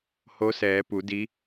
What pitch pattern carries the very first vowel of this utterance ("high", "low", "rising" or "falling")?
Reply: rising